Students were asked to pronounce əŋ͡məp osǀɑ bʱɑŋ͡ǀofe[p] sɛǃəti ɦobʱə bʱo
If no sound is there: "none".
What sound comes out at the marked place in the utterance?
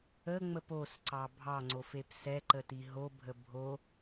p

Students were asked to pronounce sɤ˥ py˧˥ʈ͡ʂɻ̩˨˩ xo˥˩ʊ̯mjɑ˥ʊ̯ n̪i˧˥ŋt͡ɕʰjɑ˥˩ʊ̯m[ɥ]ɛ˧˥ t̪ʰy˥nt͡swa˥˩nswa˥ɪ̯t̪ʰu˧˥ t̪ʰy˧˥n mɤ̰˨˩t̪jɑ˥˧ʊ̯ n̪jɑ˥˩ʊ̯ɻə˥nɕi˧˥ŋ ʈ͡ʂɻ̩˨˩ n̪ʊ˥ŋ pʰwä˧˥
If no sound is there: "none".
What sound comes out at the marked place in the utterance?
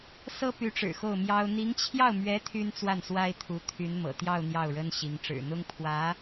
ɥ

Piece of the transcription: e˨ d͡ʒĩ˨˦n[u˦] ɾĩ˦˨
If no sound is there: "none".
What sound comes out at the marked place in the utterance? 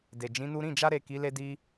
u˦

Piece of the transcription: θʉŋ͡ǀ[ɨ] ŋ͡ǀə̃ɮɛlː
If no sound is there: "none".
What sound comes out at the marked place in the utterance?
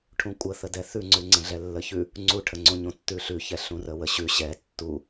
ʉ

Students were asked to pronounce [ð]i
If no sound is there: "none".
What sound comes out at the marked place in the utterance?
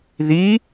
ð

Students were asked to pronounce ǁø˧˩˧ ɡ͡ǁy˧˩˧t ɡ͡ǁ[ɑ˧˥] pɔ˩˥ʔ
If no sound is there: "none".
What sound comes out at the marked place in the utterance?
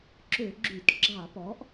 ɑ˧˩˧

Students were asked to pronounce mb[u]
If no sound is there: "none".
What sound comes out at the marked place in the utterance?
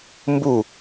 u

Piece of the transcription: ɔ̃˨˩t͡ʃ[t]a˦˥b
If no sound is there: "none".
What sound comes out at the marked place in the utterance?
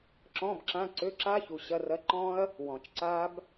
ǀ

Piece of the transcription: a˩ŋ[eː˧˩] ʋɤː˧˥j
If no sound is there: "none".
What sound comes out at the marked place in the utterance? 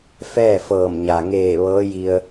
eː˧˩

